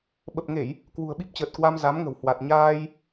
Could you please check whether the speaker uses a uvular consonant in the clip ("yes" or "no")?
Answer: no